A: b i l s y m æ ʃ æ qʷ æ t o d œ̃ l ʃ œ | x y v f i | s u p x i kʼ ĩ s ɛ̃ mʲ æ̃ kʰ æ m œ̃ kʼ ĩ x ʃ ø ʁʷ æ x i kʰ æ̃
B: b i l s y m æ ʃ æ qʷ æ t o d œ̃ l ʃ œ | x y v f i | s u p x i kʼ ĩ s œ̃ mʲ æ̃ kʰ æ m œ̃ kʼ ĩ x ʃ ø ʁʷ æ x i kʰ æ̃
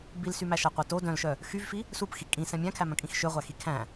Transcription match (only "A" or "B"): A